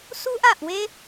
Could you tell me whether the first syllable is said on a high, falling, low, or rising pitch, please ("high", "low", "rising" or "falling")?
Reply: high